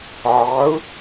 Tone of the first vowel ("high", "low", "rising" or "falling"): rising